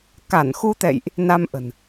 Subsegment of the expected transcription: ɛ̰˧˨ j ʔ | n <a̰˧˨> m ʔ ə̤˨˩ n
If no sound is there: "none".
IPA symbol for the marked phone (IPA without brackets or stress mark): a˧